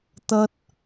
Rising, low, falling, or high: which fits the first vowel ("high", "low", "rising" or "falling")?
high